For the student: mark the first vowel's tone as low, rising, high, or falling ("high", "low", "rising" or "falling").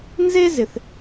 high